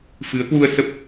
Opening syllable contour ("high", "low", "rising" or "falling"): rising